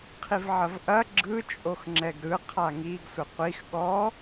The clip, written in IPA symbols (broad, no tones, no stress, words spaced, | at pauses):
qʰivʕɐvʔɐ ɡ͡ǁɯ t͡ʃʼoxŋ͡ǁɛɡɾɯ qʰaŋiɡsʷə qʷix ɠɔ